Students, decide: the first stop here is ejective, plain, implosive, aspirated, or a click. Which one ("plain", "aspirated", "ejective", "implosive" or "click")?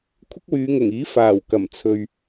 aspirated